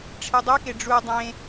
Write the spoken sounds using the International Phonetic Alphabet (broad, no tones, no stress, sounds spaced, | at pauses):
ʈ͡ʂʰ i dˤ ʏ k e ɖ͡ʐ u dˤ ẽ